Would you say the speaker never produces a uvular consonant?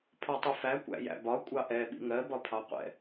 no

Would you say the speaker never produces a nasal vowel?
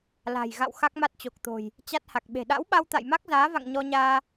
yes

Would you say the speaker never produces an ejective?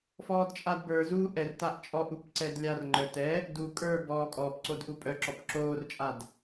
no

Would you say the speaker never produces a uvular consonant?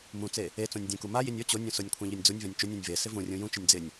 yes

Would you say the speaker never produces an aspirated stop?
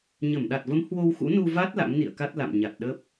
yes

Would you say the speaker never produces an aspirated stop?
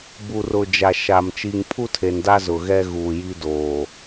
no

